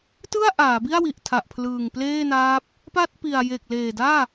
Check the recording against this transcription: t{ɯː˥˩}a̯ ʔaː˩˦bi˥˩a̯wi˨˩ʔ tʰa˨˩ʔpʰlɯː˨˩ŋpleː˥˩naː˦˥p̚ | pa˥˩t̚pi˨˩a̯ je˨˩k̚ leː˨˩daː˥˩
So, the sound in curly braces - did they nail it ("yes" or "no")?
no